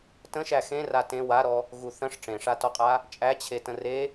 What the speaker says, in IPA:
t ə̃ ʃ æ x ẽ r a t ẽ w a ɾ ɔ | ɣ u θ ə̃ ʂ ʈ͡ʂ ẽ ʂ a t ɔ qʼ a | t͡ʃʼ æ t͡ɕʰ e t ə̃ r e

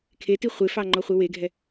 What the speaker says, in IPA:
kʰ e t i χʷ e f ɑ ŋ͡ǃ ɔ χʷ e w e ɡʱ ɛ

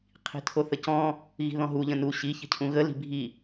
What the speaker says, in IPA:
qʰ i̤ tʰ o θ ə c ɔ̃ | ɣ i̤ ð ɔ̃ ɦ u ʎ ə̃ n u ɕ i ç ə̤ cʰ ũ ɣ ə l i̤ bʱ i

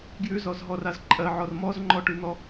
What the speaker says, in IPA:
ɡ j ʉ z ɔ z ɦ ɔ r a z ǃʼ ɜ ʕ ɔ r m ɔ z ŋ͡ǃ ɔ ʈ ʉ n̪ ɔ

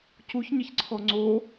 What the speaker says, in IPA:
c u ç ɲ ɐ ç ǀʰ ɔ ŋ͡ǀ o

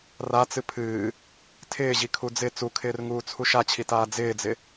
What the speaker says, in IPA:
r a t͡s ɨ pʰ ɨː | tʰ ɪː ʑ i kʰ u d͡z ɪ t͡s u kʰ ɪː r ŋ uː t͡sʰ u ʃ a t͡ɕʰ i t aː d͡z ɪː d͡z ɪ

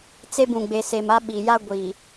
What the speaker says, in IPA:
t͡s e˦ b ũ˨ ɡ͡b e˨ s e˨ m a˦ ɓ i˨ j a˦ ɡʷ i˨

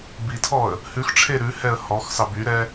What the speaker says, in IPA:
b i tʰ ɔ ə̯ | h ʉ x ʈ͡ʂʰ e ɾ ʉ h ɛ ə̯ h ɔ x s ɑ b y ɾ ɛ

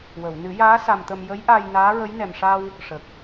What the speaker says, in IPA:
w ə˨˩˨ w n ɨ˨˩˦ j aː˧˥ s a˧ m t̪ ə˧ m j ə˧˥ j ʔ aː˧ j n aː˧˥ ɹ ə˧˥ j n ɛ˨˩ m ʂ a˧ w | ʂ ə˨˩ k̚

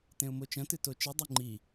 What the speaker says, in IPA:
t ẽ ʊ̯ m o t͡ʃ ɐ̃ t ɨ t o t͡ʃ i dˤ ʉ ŋ͡ǃ i

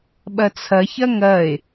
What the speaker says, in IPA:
ɓ ɐ t͡sʰ ɐ ç ɐ ŋ ɐ e̯

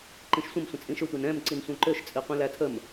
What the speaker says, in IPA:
ǃ ĩ ʃ sʷ ə̃ m sʷ ə̃ t͡sʼ ĩ ʃ ʏ tʷ ɛ n ɛ̃ m ǀ i n sʷ ɛ̃ ǃ ø ʃ t͡sʼ i qʷ ĩ l æ tʰ ə m

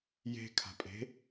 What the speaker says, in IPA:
j e̤ kʰ a̤ pʼ e̤

